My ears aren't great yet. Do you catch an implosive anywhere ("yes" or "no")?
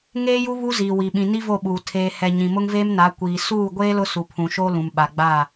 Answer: yes